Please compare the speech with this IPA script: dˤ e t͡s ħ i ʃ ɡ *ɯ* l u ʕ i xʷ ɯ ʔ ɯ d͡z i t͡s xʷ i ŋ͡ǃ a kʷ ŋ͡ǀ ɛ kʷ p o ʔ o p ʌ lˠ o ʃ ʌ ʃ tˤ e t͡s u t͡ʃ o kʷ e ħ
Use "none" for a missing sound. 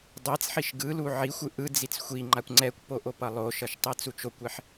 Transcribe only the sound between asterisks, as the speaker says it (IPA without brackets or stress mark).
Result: ɯ